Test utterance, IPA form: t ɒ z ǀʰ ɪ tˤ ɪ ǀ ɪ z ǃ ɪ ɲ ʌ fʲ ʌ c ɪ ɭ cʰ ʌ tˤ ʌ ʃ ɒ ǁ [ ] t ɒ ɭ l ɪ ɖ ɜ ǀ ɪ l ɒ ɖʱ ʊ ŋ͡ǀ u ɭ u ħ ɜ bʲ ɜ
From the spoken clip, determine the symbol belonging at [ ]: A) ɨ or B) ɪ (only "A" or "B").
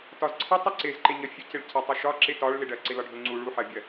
B